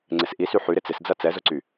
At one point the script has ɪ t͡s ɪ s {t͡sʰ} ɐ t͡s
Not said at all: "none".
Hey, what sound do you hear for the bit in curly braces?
d͡z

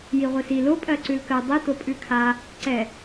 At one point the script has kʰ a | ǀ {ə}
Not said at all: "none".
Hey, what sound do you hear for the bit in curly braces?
ɛ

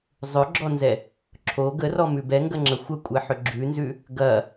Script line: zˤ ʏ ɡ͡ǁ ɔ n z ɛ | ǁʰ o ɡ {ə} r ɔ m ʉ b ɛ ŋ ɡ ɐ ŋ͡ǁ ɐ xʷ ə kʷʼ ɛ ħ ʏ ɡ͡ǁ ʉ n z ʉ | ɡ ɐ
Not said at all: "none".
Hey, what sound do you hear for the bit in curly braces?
ə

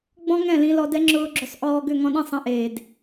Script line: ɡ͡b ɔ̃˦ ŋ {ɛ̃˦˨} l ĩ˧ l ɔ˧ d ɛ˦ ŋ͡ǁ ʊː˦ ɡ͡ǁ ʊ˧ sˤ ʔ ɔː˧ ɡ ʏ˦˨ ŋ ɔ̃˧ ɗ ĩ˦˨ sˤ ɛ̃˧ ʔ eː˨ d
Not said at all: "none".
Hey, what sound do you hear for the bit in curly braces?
ɛ̃˦˨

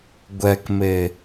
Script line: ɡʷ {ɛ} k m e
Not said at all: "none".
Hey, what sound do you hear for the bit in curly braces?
ɛ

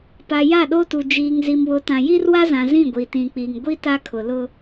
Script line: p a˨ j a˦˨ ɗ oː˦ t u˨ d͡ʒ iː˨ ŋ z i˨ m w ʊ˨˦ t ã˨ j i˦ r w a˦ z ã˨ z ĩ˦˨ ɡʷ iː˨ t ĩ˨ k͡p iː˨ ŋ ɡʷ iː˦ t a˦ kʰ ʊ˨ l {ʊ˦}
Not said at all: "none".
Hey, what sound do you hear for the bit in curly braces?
ʊ˦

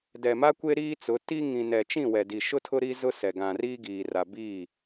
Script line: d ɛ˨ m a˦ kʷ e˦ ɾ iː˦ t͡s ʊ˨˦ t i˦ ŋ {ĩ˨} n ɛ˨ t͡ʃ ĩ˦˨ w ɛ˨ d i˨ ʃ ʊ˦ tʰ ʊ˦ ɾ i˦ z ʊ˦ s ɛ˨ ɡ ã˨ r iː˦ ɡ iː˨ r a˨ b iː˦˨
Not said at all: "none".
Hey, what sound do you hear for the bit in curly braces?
ĩ˨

